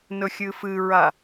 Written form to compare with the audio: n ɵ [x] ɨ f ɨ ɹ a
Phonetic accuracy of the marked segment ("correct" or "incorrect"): incorrect